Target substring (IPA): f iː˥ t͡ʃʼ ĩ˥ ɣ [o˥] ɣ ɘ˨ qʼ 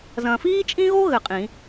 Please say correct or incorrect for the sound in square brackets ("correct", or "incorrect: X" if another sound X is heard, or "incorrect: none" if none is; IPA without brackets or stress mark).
correct